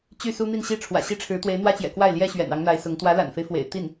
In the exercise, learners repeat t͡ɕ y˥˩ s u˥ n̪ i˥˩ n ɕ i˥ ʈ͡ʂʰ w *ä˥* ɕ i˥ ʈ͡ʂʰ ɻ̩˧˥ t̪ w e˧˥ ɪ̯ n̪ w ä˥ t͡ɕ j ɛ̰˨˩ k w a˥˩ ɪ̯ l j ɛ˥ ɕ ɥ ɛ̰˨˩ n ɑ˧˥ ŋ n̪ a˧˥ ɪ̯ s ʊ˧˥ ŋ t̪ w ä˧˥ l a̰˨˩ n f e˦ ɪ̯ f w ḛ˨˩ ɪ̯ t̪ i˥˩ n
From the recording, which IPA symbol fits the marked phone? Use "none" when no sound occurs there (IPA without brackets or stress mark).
ä̰˨˩